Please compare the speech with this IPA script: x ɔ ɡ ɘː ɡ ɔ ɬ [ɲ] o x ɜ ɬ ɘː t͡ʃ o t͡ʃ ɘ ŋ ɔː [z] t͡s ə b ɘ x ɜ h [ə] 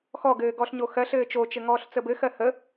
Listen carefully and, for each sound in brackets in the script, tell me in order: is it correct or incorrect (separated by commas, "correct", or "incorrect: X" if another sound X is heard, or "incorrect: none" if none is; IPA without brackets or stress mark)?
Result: correct, incorrect: ɬ, correct